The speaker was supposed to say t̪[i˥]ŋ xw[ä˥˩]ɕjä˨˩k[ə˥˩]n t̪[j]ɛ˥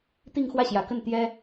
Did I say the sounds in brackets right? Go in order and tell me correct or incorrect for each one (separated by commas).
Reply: incorrect, correct, correct, correct